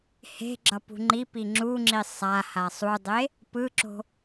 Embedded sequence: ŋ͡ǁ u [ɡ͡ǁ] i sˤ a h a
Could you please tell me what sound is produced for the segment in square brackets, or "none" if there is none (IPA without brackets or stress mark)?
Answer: ŋ͡ǁ